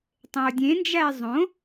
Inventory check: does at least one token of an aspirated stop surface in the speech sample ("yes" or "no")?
no